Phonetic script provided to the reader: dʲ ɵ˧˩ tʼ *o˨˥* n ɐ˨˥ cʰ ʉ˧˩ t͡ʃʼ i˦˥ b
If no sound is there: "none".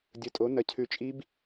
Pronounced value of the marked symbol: o˨˥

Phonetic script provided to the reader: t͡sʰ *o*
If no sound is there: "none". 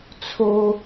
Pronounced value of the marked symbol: o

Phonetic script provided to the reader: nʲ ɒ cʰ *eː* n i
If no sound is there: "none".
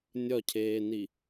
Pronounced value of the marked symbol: eː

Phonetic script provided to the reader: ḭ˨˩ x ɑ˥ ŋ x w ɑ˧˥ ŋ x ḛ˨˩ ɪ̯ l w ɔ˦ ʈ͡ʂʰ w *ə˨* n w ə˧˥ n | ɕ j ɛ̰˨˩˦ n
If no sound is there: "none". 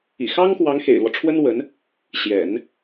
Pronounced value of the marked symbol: ə˥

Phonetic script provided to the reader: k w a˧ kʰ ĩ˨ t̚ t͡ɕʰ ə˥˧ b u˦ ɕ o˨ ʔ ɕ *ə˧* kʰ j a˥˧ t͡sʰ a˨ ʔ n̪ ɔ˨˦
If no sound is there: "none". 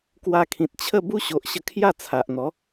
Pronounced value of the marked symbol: ə˧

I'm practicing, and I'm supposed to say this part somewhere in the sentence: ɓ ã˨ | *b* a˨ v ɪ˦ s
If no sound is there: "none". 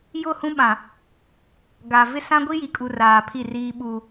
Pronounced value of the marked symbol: ɡ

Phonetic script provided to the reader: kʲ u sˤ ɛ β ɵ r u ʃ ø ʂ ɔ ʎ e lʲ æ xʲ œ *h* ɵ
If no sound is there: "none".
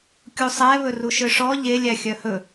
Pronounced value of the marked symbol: h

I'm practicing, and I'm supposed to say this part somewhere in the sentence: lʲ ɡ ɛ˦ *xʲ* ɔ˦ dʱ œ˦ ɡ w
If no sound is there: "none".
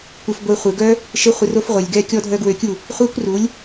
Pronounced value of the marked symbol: kʲ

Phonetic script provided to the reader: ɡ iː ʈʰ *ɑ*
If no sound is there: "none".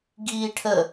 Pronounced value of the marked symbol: ə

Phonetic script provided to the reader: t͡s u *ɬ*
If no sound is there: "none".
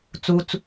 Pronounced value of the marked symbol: t͡s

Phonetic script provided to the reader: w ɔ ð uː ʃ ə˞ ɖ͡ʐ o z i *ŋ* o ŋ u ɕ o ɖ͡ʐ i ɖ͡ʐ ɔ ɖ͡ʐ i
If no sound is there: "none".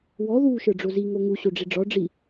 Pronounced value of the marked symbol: ŋ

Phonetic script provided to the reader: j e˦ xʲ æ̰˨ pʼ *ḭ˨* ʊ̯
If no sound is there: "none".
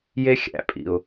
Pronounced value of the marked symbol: ḭ˨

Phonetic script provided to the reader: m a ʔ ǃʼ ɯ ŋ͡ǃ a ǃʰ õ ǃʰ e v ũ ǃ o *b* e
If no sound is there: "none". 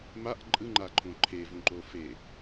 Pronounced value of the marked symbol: f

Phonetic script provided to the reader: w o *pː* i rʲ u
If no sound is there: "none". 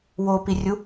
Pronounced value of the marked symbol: p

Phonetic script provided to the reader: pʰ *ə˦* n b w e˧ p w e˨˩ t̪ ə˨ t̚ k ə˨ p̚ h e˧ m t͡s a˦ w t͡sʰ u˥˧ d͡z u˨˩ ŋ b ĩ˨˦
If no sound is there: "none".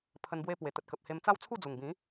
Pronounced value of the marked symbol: ə˧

